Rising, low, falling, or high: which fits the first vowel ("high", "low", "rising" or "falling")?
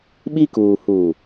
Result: high